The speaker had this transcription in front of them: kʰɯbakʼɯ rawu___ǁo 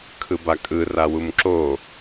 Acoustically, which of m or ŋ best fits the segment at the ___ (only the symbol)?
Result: m